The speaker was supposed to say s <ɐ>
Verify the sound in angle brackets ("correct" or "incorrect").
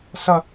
correct